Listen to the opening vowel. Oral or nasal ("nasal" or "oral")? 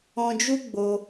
nasal